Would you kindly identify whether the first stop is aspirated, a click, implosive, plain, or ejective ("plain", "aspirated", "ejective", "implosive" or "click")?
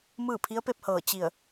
aspirated